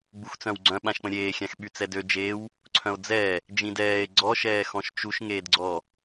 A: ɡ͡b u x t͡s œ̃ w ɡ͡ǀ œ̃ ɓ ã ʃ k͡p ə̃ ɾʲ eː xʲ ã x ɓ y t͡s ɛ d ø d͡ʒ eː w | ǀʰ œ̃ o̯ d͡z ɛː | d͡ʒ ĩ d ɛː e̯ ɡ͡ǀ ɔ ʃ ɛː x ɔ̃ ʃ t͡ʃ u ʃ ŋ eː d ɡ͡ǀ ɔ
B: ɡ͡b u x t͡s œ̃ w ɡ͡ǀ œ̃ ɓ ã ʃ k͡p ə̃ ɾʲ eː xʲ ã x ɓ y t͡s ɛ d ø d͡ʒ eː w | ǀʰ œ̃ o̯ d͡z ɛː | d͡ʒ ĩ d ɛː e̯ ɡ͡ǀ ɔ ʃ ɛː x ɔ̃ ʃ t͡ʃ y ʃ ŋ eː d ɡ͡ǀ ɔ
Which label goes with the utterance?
A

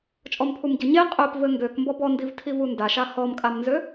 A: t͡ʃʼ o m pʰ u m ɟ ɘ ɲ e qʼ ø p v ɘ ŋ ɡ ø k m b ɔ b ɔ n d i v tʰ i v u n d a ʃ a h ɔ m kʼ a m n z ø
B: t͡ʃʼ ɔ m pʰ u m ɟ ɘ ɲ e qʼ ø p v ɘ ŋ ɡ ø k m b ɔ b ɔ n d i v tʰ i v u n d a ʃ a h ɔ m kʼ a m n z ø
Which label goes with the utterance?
B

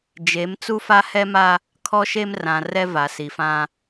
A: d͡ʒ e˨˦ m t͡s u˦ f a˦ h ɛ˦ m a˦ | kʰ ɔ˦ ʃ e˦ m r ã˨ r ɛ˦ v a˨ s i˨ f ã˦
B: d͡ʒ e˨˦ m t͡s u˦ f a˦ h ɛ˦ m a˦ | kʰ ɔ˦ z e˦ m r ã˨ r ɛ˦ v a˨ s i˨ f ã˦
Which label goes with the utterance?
A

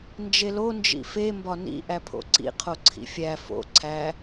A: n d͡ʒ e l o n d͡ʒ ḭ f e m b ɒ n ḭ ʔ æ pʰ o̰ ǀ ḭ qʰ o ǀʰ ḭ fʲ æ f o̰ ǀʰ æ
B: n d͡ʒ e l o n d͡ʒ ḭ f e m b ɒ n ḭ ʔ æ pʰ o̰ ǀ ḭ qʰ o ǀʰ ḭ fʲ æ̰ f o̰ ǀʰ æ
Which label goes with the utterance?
A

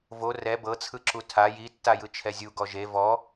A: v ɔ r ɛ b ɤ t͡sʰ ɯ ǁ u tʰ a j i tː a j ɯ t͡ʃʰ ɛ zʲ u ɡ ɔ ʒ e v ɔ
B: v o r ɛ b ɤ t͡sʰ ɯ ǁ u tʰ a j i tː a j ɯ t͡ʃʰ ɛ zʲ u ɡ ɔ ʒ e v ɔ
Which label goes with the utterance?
B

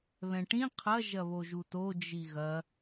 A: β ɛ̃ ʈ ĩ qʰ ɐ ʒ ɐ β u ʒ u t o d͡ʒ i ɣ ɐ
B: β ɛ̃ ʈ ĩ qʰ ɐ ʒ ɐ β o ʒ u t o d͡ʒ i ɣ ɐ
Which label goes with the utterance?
B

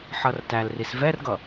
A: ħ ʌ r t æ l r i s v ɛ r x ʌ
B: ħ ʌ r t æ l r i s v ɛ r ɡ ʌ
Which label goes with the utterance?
B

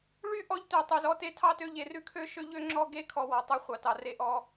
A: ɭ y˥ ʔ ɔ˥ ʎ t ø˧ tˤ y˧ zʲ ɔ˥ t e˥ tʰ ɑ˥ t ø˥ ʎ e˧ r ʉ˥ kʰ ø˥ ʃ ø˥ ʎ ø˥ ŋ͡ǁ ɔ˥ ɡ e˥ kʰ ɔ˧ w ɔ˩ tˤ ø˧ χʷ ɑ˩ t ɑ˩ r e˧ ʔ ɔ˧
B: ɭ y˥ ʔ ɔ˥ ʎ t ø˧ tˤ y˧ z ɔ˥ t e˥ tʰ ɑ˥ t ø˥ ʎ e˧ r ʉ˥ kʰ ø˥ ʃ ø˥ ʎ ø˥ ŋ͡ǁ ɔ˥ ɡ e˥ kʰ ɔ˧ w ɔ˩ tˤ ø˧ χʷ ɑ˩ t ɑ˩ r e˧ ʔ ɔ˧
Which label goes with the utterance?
B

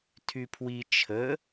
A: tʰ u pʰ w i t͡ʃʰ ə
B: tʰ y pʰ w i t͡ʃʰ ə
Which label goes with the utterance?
B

